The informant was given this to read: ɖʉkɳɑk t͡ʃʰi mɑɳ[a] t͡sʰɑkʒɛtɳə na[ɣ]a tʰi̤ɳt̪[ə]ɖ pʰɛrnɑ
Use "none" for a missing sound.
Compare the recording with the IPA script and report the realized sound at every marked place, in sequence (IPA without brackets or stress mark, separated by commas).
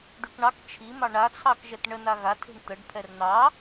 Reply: a, ɣ, ə